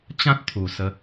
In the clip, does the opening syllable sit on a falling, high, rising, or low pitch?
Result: high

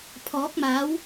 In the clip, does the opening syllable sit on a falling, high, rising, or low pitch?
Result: rising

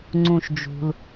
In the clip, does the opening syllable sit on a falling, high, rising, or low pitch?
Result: low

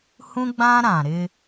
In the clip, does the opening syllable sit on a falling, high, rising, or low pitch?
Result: high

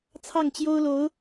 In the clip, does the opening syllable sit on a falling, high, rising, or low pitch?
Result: falling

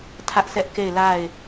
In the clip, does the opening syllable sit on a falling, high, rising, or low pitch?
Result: high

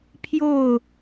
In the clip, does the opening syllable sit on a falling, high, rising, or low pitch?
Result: falling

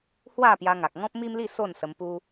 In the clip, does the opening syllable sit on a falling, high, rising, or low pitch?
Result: falling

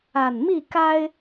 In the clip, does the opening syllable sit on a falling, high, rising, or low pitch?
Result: low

